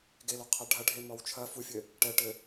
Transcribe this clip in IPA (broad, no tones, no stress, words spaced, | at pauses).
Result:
ɡelɔqʰa ɖʱɐɖʱe mɔwt͡ʃʰɐ fufʲɘ | ʈɛʈɘ